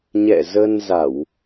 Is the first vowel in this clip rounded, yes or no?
no